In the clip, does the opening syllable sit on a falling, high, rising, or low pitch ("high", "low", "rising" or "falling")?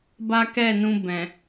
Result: high